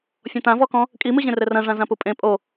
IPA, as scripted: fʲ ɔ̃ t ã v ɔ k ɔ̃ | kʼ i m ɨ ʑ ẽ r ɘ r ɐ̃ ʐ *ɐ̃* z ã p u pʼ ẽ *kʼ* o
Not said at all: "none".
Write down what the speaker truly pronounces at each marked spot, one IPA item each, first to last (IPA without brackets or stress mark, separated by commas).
ã, pʼ